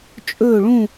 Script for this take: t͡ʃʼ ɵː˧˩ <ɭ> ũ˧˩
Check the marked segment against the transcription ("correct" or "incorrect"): correct